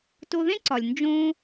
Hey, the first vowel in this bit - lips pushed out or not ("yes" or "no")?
yes